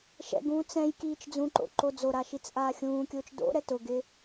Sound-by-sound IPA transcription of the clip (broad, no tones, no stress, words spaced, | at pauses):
ʃɛ̰ɡũː t͡sɛ̃j kiːt͡ʃd͡zũǃo̰ ǃod͡zoɾa ʃit͡sʔaːxʲũːkʲʊːt͡ʃ do̰ ɾɛtʊɡɪ